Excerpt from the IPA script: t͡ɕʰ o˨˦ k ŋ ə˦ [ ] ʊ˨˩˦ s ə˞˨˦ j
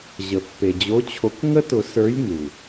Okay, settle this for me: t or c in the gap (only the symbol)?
t